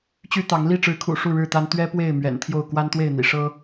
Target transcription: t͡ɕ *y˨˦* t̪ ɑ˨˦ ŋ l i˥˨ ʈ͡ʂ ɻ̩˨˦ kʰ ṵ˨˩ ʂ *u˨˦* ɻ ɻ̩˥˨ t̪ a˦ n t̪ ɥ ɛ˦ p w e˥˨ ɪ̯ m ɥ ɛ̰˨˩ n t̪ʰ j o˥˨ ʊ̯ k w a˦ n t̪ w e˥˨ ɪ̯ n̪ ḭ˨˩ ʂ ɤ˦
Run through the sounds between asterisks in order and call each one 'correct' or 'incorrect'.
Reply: incorrect, incorrect

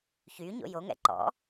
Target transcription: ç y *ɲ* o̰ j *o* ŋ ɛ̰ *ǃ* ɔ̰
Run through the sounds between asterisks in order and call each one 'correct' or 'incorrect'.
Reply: correct, correct, correct

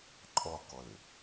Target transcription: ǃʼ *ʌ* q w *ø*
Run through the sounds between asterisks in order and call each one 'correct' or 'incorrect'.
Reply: incorrect, correct

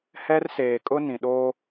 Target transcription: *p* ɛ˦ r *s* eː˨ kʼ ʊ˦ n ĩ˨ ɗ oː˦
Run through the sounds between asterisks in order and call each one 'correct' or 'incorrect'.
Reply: incorrect, correct

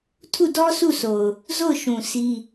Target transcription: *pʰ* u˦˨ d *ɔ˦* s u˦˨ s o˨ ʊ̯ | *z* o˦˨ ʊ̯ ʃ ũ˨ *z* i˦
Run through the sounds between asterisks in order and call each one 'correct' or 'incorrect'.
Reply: incorrect, correct, correct, incorrect

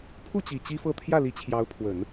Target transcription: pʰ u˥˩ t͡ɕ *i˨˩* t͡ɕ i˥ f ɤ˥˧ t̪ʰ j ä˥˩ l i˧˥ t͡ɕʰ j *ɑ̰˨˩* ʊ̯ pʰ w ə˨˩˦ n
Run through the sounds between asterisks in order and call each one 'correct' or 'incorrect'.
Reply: correct, incorrect

